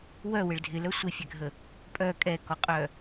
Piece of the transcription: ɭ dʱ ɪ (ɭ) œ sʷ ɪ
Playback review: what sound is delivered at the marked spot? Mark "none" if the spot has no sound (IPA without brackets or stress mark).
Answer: l